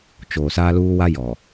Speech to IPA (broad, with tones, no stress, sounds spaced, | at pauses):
t͡ʃ oː˨ s aː˦ l uː˦ w a˦ j ɔ˨